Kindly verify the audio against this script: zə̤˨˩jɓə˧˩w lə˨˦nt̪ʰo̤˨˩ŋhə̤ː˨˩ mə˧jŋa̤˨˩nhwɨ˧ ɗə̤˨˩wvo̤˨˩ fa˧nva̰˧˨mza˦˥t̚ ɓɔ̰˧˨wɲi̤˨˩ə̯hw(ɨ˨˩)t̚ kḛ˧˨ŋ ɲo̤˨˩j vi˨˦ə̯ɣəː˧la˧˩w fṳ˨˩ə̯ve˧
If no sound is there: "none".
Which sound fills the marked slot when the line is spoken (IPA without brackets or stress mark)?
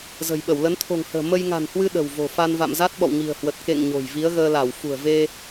ə˨˩